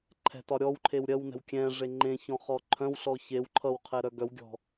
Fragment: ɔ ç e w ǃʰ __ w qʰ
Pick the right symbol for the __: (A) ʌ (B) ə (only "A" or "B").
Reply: A